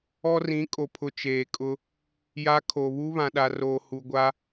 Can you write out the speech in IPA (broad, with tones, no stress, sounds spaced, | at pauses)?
ɔ˦ r ĩ˨˦ kʼ o˨ pʰ ʊ˨ t͡ʃ eː˨ kʼ ʊ˦ | j a˦ kʰ o˨ β u˦ β ã˨ ɗ a˨ r oː˨ h u˨ ɡʷ a˦